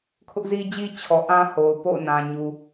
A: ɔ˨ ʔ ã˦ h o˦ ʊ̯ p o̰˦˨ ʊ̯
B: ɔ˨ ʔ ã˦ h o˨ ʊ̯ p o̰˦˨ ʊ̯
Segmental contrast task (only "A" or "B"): B